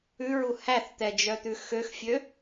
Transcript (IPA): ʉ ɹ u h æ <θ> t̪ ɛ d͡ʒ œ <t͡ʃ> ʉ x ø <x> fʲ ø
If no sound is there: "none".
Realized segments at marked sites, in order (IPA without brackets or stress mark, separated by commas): θ, t̪, x